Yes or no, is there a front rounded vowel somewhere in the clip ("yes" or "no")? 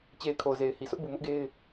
no